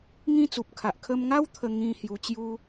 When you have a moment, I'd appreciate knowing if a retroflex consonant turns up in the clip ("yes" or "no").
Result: no